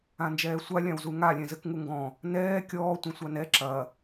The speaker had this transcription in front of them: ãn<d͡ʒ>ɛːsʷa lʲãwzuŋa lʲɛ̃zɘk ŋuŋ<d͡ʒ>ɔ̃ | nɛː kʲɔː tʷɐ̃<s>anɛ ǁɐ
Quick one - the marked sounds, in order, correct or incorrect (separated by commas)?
correct, incorrect, incorrect